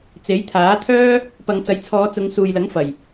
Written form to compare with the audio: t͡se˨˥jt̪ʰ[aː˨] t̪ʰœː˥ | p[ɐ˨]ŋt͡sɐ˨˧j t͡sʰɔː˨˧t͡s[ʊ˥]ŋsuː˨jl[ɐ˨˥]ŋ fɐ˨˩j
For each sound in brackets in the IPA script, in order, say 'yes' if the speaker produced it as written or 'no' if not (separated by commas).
no, no, no, yes